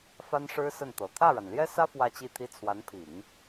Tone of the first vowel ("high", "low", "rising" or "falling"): high